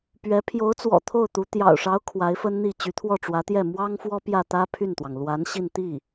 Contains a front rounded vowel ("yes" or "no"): yes